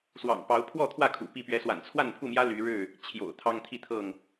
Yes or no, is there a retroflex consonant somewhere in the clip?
yes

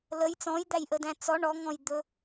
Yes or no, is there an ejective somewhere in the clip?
no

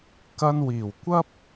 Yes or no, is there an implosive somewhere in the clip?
no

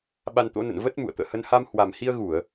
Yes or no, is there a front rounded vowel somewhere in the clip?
no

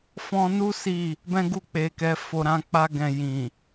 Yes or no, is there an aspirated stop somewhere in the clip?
no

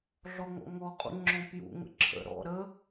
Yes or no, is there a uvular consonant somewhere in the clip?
yes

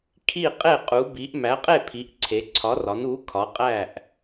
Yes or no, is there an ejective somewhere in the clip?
yes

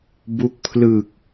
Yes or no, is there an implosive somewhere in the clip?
no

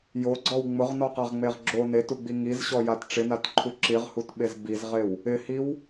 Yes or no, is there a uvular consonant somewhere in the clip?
yes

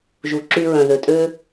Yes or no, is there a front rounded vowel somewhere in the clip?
yes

